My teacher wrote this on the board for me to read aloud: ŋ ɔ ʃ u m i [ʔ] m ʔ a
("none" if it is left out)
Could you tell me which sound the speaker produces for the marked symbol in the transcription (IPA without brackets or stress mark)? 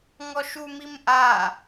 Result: none